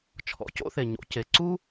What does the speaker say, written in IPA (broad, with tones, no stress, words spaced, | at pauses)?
t͡ʃʰɔ̰˨co̰˦θe˨ ɲo̰˧ce˨ ǀu˦